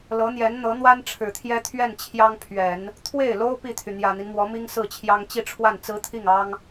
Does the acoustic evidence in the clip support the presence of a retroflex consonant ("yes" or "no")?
yes